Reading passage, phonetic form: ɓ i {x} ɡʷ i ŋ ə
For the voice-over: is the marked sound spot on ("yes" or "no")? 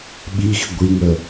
yes